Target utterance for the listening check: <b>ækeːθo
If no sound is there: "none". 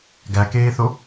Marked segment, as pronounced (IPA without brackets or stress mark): ɡ